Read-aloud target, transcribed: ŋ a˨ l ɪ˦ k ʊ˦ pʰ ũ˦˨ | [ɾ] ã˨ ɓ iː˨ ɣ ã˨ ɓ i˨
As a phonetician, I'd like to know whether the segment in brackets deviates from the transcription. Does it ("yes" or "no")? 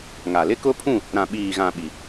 no